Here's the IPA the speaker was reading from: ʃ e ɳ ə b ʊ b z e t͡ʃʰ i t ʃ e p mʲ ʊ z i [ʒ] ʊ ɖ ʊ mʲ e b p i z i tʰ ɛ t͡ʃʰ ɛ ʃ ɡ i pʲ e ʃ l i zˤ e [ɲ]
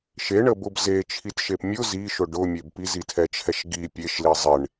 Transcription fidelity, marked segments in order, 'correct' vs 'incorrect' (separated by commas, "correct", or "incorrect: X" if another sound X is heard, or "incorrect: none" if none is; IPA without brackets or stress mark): incorrect: ʃ, incorrect: ɳ